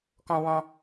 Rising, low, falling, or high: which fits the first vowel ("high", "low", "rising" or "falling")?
high